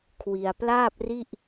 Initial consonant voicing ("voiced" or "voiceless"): voiceless